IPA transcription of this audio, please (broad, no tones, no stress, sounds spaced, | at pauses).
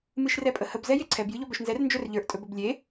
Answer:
m ɨ ʃ r ɛ pʼ ə h ə b z ɛ j e ǀʰ ɛ b j ɨ ʎ ɔ b œ ʃ n z ɛ r n d͡ʒ œ r ʎ ə˞ ʔ tʼ ɵ b ɵ b lʲ e